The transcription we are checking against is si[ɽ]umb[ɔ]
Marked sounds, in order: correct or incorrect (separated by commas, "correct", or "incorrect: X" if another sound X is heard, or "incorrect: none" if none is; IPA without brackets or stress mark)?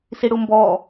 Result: correct, correct